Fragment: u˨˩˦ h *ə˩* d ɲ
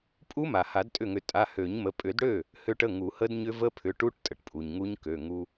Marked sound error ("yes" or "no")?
yes